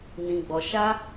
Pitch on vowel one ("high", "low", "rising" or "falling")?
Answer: low